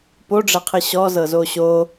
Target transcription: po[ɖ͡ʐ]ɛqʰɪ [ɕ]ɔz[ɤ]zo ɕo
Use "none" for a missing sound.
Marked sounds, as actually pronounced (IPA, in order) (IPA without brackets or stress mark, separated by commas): ɖ͡ʐ, ɕ, ɤ